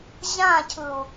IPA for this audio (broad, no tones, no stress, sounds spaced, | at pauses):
ʑ ã cʰ ɯ u̯